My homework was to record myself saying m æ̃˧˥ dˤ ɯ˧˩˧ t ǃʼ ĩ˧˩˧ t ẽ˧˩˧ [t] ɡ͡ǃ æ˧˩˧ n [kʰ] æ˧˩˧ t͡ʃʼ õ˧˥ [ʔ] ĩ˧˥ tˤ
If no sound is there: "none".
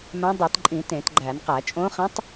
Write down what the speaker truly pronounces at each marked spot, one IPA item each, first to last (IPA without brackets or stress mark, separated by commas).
t, q, χ